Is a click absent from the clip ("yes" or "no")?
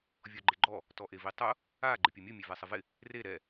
no